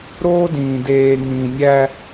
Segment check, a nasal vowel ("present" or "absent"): present